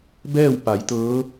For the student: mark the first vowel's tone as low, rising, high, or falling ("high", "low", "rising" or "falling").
falling